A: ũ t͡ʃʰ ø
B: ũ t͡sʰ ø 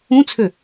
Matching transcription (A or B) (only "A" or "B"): B